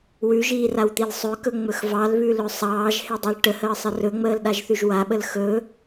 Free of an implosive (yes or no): no